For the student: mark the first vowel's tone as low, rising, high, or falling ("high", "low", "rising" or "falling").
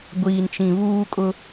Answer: low